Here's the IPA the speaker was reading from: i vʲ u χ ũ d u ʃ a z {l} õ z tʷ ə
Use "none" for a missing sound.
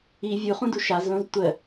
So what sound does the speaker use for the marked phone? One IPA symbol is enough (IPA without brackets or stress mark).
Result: l